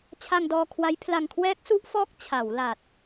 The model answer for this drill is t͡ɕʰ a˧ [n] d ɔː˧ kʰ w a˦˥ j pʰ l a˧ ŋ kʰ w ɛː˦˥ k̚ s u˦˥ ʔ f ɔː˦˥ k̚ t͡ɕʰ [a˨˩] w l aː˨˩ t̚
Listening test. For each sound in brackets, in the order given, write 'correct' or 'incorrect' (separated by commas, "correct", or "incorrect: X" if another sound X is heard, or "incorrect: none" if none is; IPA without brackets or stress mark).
incorrect: ŋ, incorrect: a˩˦